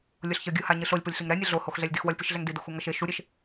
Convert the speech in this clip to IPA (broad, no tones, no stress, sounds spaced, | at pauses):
lʲ o ɬ ç ʌ ɡʲ ɯ h a ɲ ɯ ɬ o lʲ p o lʲ ɬ i ŋ ɾ ɛ nʲ ɯ ɮ o h o x ɮ ɛ lʲ d i x w ʌ lʲ p i ʃ ɮ ɛ ŋ d i d o x u ŋ ʌ ʃ e ʃ u ɾʲ e ʃ